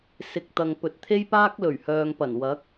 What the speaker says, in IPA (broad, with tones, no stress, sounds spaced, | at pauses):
s ɪ˨ k̚ t̪ ɐ˨ ŋ p ɵ˨˥ t̚ t̪ʰ e˥ j p aː˥ k̚ l ɵ˨˩ ɥ h œː˨ ŋ p ɐ˨˩ n w ɐ˨˥ k̚